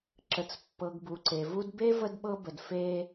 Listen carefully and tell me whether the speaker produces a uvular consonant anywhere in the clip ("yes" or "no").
no